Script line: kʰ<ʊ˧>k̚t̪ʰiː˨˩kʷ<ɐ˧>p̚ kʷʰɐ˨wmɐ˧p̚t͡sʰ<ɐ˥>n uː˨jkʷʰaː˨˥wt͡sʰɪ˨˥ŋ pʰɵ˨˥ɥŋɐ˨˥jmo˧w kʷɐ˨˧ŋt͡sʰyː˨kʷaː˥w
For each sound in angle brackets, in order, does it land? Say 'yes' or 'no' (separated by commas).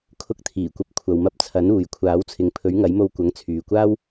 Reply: yes, yes, no